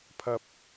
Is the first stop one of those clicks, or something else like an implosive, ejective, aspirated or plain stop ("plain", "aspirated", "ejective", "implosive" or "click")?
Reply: aspirated